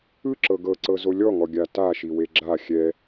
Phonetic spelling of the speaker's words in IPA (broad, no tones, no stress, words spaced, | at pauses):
ɯ ǁɤɡɤ ǀɤzolʲɔŋɔ ɡʲata ʃiweɡ͡ǁa xʲɛ